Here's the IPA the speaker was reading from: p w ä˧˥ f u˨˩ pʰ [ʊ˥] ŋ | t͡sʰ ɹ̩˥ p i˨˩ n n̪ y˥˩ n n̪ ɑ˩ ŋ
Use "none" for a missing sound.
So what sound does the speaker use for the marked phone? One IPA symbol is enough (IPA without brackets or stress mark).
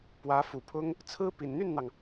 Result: ʊ˥